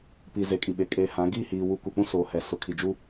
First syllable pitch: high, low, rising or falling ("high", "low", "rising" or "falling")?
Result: low